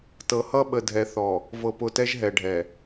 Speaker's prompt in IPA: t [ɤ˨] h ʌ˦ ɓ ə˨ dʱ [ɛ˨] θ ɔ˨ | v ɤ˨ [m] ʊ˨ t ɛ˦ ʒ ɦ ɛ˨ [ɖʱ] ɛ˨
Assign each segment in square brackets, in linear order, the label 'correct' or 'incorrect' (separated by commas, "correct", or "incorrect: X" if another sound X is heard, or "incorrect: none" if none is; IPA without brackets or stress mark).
correct, correct, incorrect: p, correct